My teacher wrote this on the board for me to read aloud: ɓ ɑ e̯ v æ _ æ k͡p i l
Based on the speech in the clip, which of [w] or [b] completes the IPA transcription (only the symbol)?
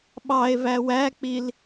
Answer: w